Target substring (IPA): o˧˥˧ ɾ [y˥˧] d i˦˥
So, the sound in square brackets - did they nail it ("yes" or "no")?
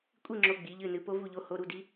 no